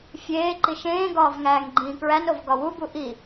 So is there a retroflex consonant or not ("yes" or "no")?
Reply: no